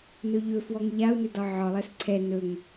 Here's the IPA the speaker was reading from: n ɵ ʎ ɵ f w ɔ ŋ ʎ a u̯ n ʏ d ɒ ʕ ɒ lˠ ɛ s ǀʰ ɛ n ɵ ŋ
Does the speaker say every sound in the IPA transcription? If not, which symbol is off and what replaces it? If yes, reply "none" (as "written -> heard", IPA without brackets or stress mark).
none